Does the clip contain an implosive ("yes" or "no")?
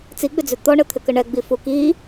no